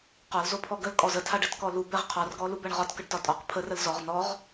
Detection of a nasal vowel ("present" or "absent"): absent